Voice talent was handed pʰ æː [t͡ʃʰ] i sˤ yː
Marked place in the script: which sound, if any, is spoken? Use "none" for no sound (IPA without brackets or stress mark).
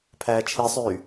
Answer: t͡ʃʰ